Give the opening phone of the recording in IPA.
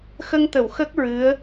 x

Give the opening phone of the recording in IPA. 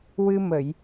w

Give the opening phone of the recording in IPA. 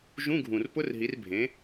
ʒ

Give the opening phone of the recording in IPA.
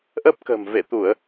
ʔ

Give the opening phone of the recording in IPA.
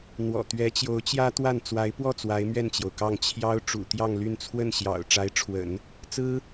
n̪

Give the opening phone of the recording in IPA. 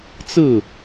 t͡s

